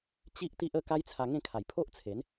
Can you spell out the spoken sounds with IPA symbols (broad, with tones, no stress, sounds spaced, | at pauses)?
t͡ɕ i˦ ʔ t̪ i˦ ʔ ə˥˧ k a˦ j t͡sʰ a˧ ŋ ẽ˥˧ kʰ a˨˩ j pʰ o˦ ʔ t͡sʰ e˨˦ n